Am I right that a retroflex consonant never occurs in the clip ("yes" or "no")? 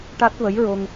no